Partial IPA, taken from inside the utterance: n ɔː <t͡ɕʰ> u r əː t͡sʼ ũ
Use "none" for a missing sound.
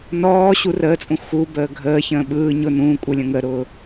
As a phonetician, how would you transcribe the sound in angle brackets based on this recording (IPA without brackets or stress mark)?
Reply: ɕ